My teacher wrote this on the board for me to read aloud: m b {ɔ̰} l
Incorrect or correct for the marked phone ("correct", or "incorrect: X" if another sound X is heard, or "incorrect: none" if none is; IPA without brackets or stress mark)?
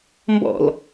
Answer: correct